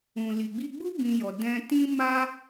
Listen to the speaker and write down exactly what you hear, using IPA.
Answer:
ũ˨ l i˨ ɡ͡b i˧ ɡ͡b u˦ b ĩ˧ j ɔ˨ d ɛ̃˧ t ĩ˦ m a˦

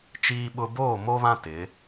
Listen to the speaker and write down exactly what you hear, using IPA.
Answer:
t͡ʃ iː˦ ɓ ʊ˦ b oː˦˨ m o˦ β ã˦ t ɪ˨˦

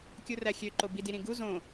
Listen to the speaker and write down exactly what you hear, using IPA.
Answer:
kʲ u r æ xʲ ø ǃ o b i d i ɾ ĩ ɡ u z õ

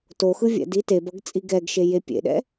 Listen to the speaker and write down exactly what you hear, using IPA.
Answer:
t o x ɯ vʲ ɛ̰ d i t e b ʌ ɡ t͡sʼ i ɡ ɛ ɡ ʃ e j e pʲ ḛ ɗ ɛ̰

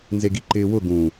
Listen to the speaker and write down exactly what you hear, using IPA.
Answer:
n z e ɡ i ǃ ɪː w ʊ ɡ ũ

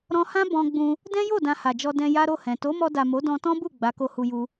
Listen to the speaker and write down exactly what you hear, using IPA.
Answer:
ɾ ɔ̃˧ h ã˦ b ɔ̃˧ ɡ͡b ũ˧ | d ɛ̃˦ j o˦˨ d ã˧ h a˨ d͡ʒ ɔ˧ d ɛ̃˧ j a˦ ɾ o˦˨ h ɛ̃˨ t o˨˦ m ɔ˧ d a˨ m o˨˦ d ɔ̃˧ t ɔ̃˦ b u˦˨ ɡ͡b a˨˦ k o˧ h u˧ j u˧

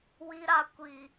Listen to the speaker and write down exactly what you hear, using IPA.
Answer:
w i˧ ɾ a˧ kʷ i˨

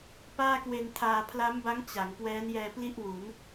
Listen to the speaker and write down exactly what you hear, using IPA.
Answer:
p aː˥˩ k w e˧ n tʰ aː˧ pʰ l a˦˥ m b a˦˥ ŋ t͡ɕ a˩˦ ŋ k w ɛː˦˥ n j ɛː˧ p l i˥˩ ʔ w u˩˦ n

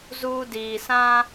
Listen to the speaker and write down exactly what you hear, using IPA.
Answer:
z uː˦ d iː˨ s ã˦

